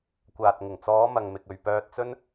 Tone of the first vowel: low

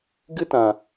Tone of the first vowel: high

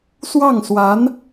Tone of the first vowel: falling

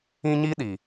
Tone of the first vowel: high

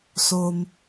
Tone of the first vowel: low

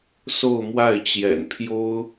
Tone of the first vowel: falling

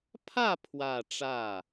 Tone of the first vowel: falling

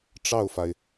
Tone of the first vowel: falling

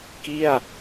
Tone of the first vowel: falling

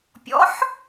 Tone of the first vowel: rising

